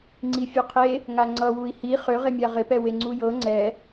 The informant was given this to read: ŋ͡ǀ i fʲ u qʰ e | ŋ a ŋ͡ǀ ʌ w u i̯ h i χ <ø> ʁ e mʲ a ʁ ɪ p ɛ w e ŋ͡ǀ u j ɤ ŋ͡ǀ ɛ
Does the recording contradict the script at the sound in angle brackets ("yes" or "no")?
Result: no